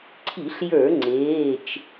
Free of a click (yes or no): no